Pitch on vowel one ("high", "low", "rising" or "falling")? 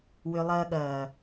low